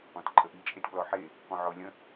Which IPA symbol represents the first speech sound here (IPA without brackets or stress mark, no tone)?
ɔ̃